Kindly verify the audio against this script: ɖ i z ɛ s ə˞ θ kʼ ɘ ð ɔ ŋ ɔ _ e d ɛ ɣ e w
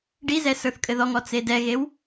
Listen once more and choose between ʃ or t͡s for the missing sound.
t͡s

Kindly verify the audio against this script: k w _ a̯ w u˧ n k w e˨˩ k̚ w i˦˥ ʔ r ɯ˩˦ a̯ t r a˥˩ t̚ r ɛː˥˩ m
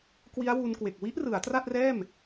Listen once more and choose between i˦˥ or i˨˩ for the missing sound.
i˦˥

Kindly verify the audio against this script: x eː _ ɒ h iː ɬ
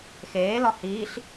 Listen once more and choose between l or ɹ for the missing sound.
l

